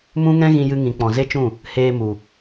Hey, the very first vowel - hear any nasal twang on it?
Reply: yes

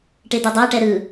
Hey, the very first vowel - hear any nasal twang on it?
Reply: no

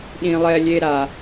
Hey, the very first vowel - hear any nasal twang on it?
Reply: yes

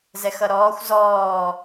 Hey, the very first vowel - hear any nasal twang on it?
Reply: no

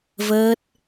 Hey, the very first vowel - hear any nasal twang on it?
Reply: no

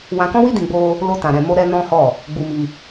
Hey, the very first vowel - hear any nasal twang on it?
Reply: yes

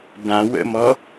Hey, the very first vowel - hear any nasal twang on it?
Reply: yes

